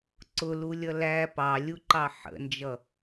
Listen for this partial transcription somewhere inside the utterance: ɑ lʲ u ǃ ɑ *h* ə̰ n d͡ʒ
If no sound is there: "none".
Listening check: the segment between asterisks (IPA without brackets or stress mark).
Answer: ħ